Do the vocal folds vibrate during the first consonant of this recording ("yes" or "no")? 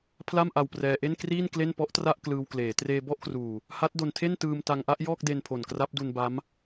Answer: no